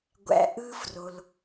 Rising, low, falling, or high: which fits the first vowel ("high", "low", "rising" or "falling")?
low